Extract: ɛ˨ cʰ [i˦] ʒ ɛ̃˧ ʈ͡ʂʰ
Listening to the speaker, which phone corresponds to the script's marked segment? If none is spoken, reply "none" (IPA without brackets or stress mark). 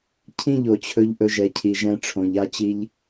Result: i˨